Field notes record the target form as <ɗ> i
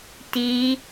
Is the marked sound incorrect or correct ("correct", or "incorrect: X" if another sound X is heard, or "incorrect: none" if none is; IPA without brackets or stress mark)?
incorrect: t